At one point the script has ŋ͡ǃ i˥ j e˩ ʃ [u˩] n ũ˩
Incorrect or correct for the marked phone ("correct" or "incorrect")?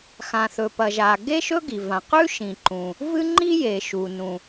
correct